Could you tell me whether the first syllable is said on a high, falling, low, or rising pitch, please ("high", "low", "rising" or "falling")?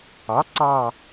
rising